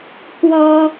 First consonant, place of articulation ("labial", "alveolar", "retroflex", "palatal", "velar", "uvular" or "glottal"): velar